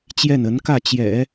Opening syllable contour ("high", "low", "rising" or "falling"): falling